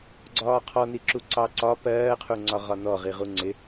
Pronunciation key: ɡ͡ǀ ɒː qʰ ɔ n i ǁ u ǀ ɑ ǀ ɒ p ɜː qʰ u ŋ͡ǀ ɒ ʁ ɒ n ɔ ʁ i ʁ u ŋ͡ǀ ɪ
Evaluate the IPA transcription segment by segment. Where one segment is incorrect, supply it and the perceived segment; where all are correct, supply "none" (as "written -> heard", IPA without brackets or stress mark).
none